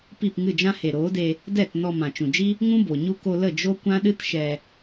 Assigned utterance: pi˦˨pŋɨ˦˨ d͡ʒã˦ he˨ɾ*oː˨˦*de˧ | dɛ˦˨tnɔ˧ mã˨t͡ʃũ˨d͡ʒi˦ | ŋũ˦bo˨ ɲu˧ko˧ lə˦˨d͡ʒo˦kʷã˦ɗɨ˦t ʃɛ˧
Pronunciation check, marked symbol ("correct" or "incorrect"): correct